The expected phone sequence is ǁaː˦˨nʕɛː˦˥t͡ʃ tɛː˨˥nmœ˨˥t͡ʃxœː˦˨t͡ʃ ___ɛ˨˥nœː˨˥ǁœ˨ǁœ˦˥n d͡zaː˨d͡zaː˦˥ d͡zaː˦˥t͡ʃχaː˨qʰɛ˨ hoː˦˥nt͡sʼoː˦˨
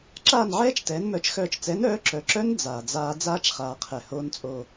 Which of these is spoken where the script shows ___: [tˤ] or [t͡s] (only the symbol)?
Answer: t͡s